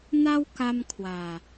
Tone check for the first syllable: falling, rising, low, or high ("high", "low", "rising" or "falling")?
high